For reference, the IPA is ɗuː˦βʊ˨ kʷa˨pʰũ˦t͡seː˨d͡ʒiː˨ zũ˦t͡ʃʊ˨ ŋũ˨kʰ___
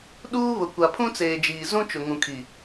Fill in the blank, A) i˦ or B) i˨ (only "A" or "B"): B